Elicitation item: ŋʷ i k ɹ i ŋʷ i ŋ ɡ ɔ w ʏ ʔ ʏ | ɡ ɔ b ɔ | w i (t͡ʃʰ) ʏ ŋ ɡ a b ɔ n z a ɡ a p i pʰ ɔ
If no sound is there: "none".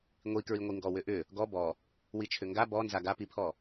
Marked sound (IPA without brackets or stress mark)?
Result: t͡ʃʰ